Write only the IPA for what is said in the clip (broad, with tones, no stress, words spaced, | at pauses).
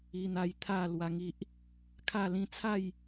i˧n̪a˧jt̪ʰa˥˧lwa˧ ŋi˨ʔ | kʰa˥˧ lĩ˧t͡sʰa˥˧j